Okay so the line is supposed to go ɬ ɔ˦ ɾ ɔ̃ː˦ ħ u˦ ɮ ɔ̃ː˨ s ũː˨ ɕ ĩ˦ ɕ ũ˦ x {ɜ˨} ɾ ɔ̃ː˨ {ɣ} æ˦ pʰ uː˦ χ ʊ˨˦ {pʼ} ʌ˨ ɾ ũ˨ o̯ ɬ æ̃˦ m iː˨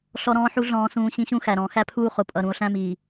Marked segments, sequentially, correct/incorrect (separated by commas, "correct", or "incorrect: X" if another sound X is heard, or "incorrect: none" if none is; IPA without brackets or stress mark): incorrect: æ˨, incorrect: x, correct